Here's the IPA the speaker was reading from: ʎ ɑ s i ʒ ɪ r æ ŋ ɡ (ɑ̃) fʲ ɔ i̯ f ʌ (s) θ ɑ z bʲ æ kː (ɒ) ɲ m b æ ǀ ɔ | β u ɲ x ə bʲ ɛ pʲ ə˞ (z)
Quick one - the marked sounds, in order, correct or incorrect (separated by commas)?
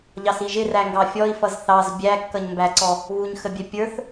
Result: incorrect, incorrect, incorrect, incorrect